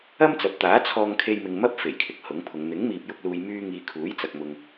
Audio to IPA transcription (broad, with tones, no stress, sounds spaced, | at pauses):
ɐ˥ m t͡s ɐ˨ p̚ t̪ aː˨˥ t͡sʰ ɔː˧ ŋ kʰ e˧ j m ɪ˨ ŋ m ɐ˥ p̚ f e˨˩ j kʰ ɪ˨ k̚ h ʊ˨˥ ŋ pʰ ʊ˨˧ ŋ n̪ ɪ˨˥ ŋ m iː˨ p̚ j ʊ˧ k̚ l uː˨ j m yː˧ ŋ iː˨ kʰ uː˨˥ j t͡s ɐ˨ k̚ m ʊ˨ ŋ